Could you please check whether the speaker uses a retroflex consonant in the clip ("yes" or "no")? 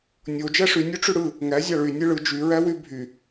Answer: yes